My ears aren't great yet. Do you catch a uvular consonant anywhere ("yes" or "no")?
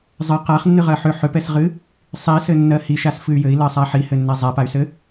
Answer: yes